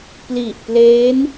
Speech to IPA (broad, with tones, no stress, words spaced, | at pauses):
pli˨˩ʔpleː˦˥n